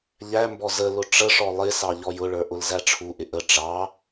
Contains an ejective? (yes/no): no